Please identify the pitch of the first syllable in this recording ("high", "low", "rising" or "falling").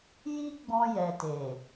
high